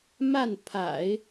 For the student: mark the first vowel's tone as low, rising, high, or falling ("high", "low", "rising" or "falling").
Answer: falling